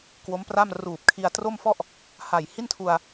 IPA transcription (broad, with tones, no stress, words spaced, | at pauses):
kwo˦˥mpra˥˩m ruː˨˩p̚kʰi˧a̯tro˥˩mfɔ˥˩ʔ | ha˨˩jhi˥˩ntʰu˧a̯